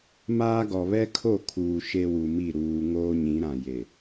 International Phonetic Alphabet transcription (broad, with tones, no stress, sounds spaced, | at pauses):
m aː˦ ɡ ɔ˨ β ɛ˦ kʰ o˦˨ kʰ uː˨ ʃ e˦ w u˨ m i˦˨ ɾ uː˨ ŋ oː˦ ɲ ĩ˨˦ ɾ ã˨ j e˨